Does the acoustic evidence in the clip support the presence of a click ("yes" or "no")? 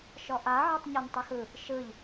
no